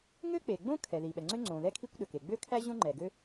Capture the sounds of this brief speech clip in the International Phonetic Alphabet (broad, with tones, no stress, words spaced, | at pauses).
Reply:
ŋø˥k͡pe˩ɡ͡bõ˥ kʰɛ˩ði˩ɓɛ˩ŋ͡ǀø˥ ŋ͡ǀõ˩ðɛ˥kʰi˥kʷ ɗø˩ke˩ ɡ͡bø˥kʰæ˥ʑõ˥ ŋ͡ǃɛ˩ɡø˥